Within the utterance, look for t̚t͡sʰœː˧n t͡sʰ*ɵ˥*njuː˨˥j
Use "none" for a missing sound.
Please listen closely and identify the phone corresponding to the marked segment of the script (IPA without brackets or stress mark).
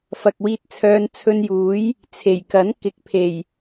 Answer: ɵ˧